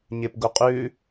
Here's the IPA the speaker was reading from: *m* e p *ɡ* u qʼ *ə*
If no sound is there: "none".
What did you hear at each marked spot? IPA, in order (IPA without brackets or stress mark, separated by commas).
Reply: ɲ, ɡ, ʉ